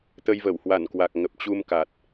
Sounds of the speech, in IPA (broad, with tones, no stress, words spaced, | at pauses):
t̪ə˧jvə˧˩whwa˧˩nkwa˨˩k̚ ŋə˨˩p̚t͡ɕu˧mka˨˩t̚